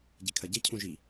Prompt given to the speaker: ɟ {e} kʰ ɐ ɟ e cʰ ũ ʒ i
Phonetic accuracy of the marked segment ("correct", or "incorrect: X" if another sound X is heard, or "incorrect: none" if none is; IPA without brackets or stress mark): incorrect: i